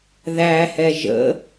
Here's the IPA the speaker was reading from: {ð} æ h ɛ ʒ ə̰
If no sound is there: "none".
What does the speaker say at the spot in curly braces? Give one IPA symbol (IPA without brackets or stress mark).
ð